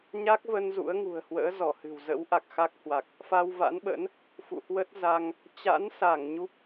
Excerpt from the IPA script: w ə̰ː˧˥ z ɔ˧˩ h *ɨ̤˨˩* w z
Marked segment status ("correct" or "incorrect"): correct